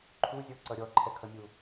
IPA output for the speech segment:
ǃʰ u zʲ ɔ ǀ ʌ ɾʲ ɔ ǃʰ ɛ kʰ ʌ mʲ u

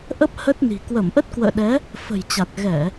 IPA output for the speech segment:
ʔ ə˦˥ p̚ h ə˦˥ t̚ n i̤˨˩ k w ə˧˩ m ʔ ə˦˥ t̚ k w ə̰ː˧˨ ɗ ɛ˨˦ | f ə̤˨˩ j t͡ɕ a˨˩ t̚ ɣ ɛ˧˩˨

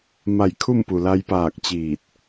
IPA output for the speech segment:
m a˧˩ j kʰ u˥˨ m p u˩ l a˧ j p aː˧˩ k̚ t͡ɕ iː˧˩ t̚

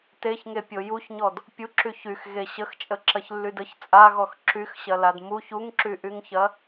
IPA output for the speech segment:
t e ç ŋ e pʲ o j u ç ɲ ɔ d | pʲ u ǁ y ç y x ɣ e ɕ ə x t͡ʃʼ ə ǁ ɐ ç lː y d ə ç t͡sʼ a ɣ ɔ x ǁ y x ɕ ɐ l a d m u ç u ŋ ǁ y ʔ y ŋ ç ɐ

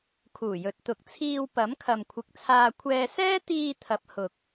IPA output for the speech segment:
kʰ uː˨˩ j ɵ˨˥ t̚ t̪ ʊ˨ k̚ t͡sʰ iː˧ w p ɐ˨˥ m kʰ ɐ˨ m kʷʰ ɪ˨˥ k̚ t͡sʰ aː˧ kʷʰ ɛː˧ s ɛː˥ t̪ iː˧ t̪ʰ ɐ˨˥ p̚ h ʊ˨ k̚

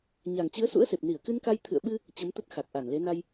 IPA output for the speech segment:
ɲ a˨˩ ŋ t͡ɕ ɨ˨˦ ə̯ s ṵ˧˥ ə̯ s e˨˩ p̚ n i˧˩ ə̯ k ɨ˧ n k a˧ j t̪ʰ ɨ̰˧˨ ə̯ ɓ ɨ˧ | t͡ɕ ə˨˦ m t̪ ə˦˥ t̚ x a˨˩ k̚ ʔ a˧˩ n l e˨˦ n a˧ j

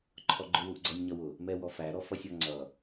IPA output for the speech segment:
ǃʰ ɔ ɡ͡ǃ ʊ w u ʔ ɡ͡ǀ ʌ nʲ ɲ ʌ w ʊ | m ɛ w ɔ f æ ɾ ɔ f ʌ sʲ ɔ ŋ͡ǀ ʌ

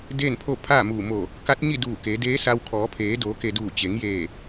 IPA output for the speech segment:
d eː˥˨ n pʰ o˥˨ pʰ aː˥˨ m uː˧˩ m o˧˩ | k a˧˥ t̚ ɲ i˥˨ d uː˧˩ k e˩˧ d eː˧˥ s a˧ w kʰ ɔː˩˧ pʰ eː˩˧ d oː˩˧ k e˩ d uː˧˩ t͡ɕ e˩˧ ŋ j eː˧˩

